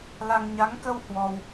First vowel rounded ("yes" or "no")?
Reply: no